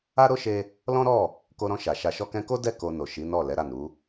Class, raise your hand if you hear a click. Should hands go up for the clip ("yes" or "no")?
no